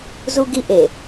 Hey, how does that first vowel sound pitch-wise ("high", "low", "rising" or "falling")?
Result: high